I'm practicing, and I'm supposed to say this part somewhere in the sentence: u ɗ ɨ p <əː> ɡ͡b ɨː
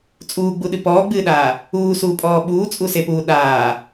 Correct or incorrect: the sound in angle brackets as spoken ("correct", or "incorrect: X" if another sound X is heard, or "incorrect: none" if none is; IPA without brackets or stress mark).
incorrect: ɔː